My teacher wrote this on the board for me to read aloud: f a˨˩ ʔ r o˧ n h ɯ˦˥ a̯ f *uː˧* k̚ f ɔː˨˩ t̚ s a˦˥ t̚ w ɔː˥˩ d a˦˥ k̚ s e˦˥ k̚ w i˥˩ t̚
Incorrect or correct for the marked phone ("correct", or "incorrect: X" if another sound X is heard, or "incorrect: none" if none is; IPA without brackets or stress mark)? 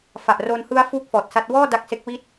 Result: incorrect: uː˥˩